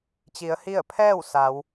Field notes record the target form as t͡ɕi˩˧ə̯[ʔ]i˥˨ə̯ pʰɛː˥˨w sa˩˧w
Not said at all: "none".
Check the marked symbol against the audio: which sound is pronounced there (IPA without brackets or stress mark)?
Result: h